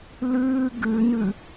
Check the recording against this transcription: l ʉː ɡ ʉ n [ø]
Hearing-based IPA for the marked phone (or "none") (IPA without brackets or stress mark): ʉ